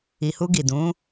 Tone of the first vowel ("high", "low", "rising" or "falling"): low